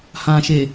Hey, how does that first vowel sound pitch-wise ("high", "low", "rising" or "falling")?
low